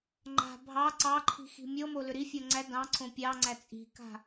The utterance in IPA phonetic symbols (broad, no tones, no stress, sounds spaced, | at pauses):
ŋ͡ǃ a̤ bʱ ɑ ǀ ɑ ǃʰ i̤ x i̤ mʲ ɤ m o l ʏ ɾ i fʲ ɤ ŋ͡ǀ æ d ɑ̃ ǀʰ õ pʲ ɑ ŋ͡ǀ æ t͡sʼ i̤ k a̤